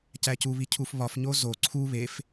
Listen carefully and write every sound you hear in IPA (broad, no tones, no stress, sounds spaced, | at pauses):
c æ c u β i cʰ u f β ɒ f ɲ o z o ǀʰ u β e f